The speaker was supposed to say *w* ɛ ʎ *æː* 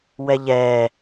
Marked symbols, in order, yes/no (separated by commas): yes, no